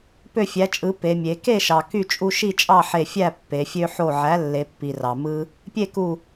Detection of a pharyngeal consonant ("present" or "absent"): present